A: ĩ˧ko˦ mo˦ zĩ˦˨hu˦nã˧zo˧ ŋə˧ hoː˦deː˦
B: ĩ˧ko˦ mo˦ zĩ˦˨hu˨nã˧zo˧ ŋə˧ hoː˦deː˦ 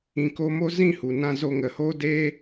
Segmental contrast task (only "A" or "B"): B